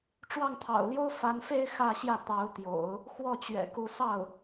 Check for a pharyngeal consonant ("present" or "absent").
absent